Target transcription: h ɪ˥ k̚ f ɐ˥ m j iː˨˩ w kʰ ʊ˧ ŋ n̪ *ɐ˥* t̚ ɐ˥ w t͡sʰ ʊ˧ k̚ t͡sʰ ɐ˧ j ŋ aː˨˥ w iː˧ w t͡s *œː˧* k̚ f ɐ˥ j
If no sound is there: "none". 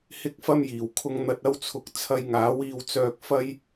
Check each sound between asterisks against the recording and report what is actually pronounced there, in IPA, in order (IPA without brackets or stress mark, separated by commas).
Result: ɐ˧, œː˧